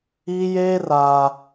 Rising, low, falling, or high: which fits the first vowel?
high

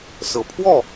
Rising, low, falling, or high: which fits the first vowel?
low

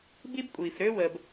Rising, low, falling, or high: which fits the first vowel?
high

